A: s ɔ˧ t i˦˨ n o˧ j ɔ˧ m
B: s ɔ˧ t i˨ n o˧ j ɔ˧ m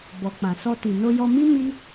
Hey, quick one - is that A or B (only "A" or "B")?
B